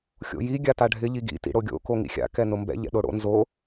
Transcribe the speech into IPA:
xʲ o̰ j i ɡʲ a t a ɖʱ ɪ ʎ i ɡ ḭ t ḭ ɽ o ɡʲ o̰ k o ŋ ḭ xʲ a̰ k ɛ n ʊ m b ɛ̰ ʎ ɛ̰ ɗ o ɽ o̰ n z o

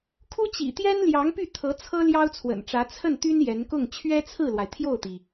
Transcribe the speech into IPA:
kʰ u˥ t͡ɕ ḭ˨˩ t̪ j ɛ˥ n l j ɑ˧˥ ŋ p y˥˩ t̪ʰ ɤ˧˥ t͡sʰ ɤ˥ l j ɑ˥ ʊ̯ t͡sʰ w ə̰˨˩ n ʈ͡ʂ ä˧˥ t͡sʰ ə˥˩ n t̪ y˥ n j ɛ˧˥ n k ʊ˥˩ ŋ t͡ɕʰ ɥ ɛ˥ t͡sʰ ɹ̩˥˩ l w a˩ ɪ̯ t̪ʰ j o˥˩ ʊ̯ t̪ i˩

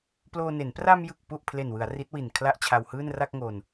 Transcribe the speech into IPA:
p l oː˧ n e˩˦ n p r a˧ m j ɯ˨˩ k̚ p u˨˩ ʔ pʰ l e˨˩ n w ɯ˩˦ a̯ r i˦˥ t̚ w i˨˩ n kʰ l a˥˩ ʔ t͡ɕʰ a˧ w h ɯː˥˩ n r a˥˩ k̚ ŋ o˧ n

